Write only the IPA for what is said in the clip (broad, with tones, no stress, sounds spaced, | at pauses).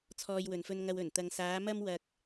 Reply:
t͡sʰ ɔː˧ j w ɵ˨ n f ɵ˧ n ŋ ɐ˧ w ɵ˨˩ n t̪ ɐ˨ ŋ s aː˨˧ m ɐ˥ m w ɐ˧ k̚